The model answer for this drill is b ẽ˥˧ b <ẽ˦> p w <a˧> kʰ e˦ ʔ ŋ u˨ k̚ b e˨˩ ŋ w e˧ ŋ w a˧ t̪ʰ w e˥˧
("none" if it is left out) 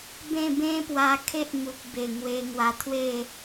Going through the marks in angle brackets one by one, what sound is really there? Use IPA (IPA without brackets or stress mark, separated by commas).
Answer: ẽ˦, a˧